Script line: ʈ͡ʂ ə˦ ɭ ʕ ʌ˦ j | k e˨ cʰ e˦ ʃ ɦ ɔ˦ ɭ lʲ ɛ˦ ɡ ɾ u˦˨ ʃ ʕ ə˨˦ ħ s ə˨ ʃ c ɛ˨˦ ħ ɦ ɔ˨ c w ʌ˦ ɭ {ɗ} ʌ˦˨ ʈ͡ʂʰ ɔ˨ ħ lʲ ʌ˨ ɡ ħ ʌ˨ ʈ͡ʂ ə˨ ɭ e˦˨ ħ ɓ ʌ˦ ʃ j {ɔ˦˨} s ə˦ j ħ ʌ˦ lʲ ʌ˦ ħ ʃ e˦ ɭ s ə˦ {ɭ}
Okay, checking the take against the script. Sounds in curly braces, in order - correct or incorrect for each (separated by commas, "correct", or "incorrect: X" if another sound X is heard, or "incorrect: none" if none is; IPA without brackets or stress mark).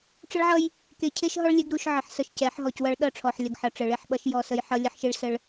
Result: correct, correct, correct